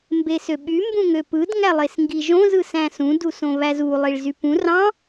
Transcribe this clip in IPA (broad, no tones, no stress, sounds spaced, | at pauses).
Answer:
m b e s ø ɓ y m b ũ ŋ ø p ɯ d ŋ æ lˠ e s ŋ ɡ i ʒ õ z ɯ s æ̃ s ũ d u s õ β æ z u lˠ i ɭ z y p ũ r ɑ̃